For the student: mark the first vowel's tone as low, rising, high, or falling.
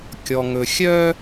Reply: low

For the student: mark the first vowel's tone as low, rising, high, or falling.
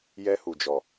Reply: high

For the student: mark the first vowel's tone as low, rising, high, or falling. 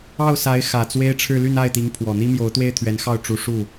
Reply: falling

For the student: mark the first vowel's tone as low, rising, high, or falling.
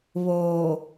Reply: low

